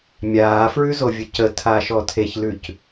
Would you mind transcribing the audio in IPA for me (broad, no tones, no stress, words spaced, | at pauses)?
mʲaːfɹʉzovʲə cətʰaʃɔ tʰeçlʉc